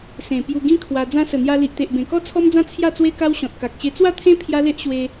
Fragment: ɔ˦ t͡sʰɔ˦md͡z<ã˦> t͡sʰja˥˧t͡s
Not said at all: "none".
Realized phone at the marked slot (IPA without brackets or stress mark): ã˦